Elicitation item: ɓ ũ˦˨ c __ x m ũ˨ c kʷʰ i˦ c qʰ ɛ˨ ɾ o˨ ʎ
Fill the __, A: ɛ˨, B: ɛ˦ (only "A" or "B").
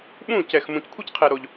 A